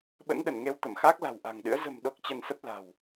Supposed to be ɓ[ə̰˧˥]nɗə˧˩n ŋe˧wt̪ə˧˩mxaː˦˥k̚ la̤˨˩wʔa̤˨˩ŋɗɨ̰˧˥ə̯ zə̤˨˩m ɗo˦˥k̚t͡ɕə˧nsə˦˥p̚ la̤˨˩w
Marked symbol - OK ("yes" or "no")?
yes